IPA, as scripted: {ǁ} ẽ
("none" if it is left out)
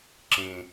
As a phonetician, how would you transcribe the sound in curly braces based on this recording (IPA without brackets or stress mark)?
ǁ